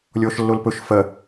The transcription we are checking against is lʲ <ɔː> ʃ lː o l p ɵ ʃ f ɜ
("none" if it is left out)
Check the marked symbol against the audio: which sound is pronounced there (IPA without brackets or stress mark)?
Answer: ɔː